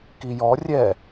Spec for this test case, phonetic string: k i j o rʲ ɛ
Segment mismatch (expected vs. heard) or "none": o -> ɔ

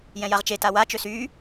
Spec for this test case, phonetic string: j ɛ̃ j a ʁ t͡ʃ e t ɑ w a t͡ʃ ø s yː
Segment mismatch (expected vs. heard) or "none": ɑ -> a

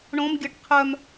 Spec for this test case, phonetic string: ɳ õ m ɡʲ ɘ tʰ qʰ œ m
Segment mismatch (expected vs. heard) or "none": tʰ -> ʈ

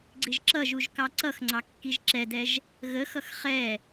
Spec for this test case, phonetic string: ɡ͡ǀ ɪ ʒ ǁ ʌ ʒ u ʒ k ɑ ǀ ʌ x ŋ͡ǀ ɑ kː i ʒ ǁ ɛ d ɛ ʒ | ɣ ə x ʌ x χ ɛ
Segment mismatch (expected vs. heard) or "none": none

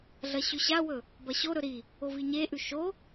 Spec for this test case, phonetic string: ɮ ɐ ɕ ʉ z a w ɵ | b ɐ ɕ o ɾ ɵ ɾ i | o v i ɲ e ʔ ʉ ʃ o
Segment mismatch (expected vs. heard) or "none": z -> ɕ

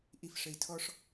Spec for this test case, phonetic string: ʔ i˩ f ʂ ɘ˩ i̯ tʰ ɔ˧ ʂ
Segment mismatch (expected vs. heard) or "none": none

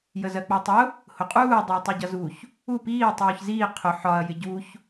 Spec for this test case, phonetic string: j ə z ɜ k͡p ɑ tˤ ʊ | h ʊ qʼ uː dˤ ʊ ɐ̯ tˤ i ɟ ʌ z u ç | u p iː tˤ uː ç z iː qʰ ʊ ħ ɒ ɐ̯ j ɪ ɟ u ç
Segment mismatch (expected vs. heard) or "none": none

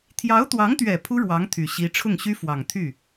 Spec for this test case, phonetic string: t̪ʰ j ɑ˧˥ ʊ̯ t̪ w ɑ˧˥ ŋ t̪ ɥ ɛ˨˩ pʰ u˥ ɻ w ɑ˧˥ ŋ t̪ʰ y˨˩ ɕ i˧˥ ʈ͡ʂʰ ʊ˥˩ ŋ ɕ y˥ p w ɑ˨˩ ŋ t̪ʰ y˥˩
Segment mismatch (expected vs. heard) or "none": p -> f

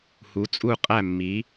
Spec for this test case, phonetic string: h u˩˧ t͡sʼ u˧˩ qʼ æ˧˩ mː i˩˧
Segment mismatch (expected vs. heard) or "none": none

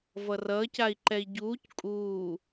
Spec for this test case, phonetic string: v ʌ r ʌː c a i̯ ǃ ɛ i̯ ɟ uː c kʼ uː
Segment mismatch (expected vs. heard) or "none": none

